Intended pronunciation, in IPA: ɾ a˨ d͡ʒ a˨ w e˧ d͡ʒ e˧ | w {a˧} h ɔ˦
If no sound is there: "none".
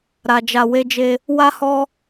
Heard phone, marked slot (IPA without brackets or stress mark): a˦